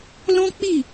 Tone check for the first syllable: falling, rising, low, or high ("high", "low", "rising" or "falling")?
high